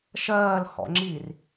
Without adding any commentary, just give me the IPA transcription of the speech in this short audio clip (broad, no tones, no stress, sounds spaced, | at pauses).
ʃ ɜː l h ɔ̰ ŋ͡ǁ i r